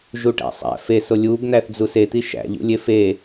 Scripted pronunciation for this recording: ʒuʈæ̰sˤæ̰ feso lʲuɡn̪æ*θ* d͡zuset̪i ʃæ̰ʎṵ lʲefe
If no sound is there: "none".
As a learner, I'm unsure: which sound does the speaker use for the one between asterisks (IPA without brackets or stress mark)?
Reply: θ